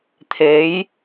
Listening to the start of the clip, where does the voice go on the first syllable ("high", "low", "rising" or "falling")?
rising